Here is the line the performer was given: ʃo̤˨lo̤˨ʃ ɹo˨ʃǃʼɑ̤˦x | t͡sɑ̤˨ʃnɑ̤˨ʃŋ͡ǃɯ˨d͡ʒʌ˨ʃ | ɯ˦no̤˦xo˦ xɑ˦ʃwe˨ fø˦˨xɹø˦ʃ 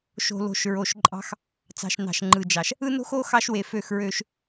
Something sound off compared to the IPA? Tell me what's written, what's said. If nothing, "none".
ʌ˨ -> ɑ˨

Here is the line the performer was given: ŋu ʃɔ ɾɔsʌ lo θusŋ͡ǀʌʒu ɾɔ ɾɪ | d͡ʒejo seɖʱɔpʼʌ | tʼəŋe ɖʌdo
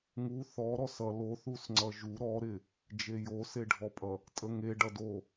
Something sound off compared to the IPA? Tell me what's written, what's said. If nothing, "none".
ʃ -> θ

